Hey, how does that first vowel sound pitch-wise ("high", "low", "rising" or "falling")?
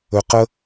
low